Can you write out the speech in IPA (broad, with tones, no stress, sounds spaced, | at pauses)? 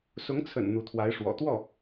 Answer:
s ʊ˧˥ ŋ t͡sʰ ə̰˨˩ n n̪ u˧˥ t̪ʰ w a˧˥ ɪ̯ ʂ w ɔ̰˨˩ t̪ w ɔ˥˩